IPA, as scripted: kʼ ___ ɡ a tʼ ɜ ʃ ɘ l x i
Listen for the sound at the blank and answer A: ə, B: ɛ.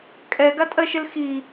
B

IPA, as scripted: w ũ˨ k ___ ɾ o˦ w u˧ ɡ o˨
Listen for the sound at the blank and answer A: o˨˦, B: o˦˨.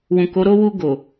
A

